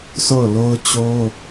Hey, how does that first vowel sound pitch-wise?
falling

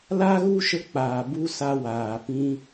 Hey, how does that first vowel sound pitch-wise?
high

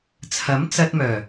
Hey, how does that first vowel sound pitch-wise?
rising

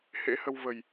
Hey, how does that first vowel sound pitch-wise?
rising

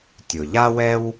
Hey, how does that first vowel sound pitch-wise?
low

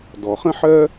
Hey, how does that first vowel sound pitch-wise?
low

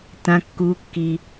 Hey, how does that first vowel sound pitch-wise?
high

